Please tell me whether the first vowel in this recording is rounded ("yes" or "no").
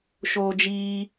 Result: yes